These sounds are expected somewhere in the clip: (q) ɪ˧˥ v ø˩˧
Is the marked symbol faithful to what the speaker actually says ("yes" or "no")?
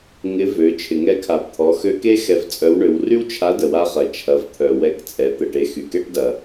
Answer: no